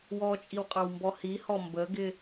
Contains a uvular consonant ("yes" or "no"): yes